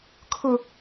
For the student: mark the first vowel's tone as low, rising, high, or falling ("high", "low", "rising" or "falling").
high